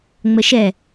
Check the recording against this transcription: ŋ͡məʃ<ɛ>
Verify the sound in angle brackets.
correct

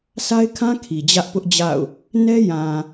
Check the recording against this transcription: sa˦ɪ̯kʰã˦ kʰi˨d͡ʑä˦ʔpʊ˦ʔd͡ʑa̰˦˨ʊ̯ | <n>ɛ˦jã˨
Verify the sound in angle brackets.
correct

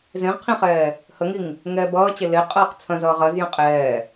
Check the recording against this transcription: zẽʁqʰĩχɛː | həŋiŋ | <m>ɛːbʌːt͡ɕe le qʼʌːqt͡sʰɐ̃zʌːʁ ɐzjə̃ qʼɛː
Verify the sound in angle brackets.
incorrect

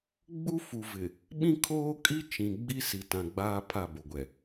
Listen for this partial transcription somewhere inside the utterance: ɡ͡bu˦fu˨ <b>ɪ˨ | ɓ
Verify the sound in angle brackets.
incorrect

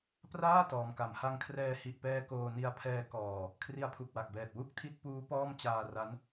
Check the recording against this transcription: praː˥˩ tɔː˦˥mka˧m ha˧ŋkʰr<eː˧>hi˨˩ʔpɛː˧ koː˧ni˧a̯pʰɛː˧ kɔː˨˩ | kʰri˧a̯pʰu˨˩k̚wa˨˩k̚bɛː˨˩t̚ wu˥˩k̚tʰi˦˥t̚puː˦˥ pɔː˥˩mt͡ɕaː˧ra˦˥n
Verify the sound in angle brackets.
incorrect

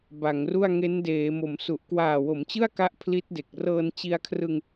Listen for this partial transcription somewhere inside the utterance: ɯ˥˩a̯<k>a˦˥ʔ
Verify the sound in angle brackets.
correct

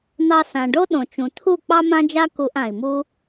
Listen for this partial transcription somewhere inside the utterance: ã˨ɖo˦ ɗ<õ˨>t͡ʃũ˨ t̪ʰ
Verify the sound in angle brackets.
correct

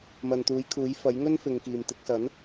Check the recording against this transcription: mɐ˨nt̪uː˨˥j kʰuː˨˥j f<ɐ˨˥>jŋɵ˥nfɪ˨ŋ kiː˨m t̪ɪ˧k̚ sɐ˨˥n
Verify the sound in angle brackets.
correct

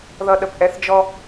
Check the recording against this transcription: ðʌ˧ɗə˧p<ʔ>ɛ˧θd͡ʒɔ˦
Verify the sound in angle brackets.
correct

